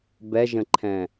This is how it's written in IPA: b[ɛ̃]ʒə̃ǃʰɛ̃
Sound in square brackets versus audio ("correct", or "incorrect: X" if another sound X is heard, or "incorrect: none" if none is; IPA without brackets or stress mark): incorrect: ɛ